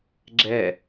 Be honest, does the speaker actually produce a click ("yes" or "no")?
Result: yes